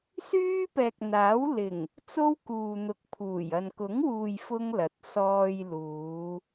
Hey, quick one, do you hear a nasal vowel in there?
no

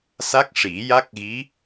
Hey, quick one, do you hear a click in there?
no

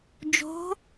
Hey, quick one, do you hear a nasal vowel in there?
no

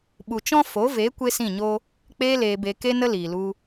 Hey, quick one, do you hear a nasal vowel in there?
yes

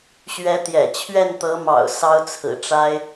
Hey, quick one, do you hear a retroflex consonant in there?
yes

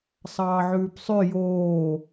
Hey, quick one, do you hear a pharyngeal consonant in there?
yes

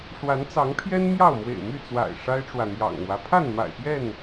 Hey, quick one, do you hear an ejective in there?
no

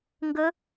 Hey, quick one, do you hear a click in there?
no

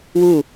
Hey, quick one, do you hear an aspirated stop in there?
no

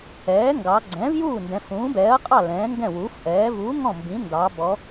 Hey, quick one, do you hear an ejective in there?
yes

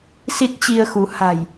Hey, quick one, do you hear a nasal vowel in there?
no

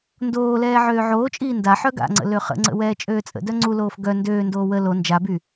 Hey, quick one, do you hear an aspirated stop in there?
no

